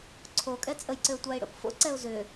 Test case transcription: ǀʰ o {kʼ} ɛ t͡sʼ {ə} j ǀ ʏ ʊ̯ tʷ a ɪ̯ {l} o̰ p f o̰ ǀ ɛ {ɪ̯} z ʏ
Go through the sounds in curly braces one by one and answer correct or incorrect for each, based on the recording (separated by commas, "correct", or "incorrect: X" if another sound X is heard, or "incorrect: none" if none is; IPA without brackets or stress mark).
correct, correct, incorrect: ɽ, incorrect: ʊ̯